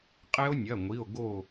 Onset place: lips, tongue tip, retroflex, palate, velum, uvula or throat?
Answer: uvula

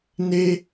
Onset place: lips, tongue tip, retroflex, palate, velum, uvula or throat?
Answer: tongue tip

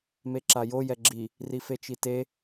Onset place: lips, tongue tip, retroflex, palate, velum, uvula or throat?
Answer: lips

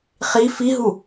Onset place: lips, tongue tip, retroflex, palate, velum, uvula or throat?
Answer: uvula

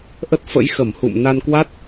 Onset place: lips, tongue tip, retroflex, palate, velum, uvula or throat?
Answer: throat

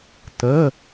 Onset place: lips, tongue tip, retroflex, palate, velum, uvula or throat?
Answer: tongue tip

